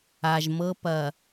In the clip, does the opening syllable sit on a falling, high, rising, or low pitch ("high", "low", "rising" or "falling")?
low